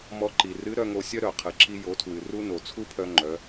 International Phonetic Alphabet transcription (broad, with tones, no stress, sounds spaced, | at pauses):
m ɔ˧ ǃ i˩ r ɨ˧˥ ɾ œ˧ ŋ o˧ sʲ œ˥ ɾ œ˩ qʰ ɨ˩ ǁ i˧ j o˩˧ tʰ w ɨ˩ r u˧ n o˩ t͡sʰ u˥ pʰ œ˧ ŋ͡ǃ œ˩˧